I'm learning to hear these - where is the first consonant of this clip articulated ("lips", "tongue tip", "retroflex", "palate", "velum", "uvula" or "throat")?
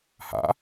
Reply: throat